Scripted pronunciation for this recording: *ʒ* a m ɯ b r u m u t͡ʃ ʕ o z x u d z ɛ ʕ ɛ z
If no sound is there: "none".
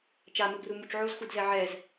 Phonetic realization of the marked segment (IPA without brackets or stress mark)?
t͡ʃ